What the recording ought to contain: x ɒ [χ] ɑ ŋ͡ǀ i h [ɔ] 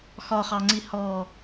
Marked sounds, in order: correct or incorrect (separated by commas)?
correct, correct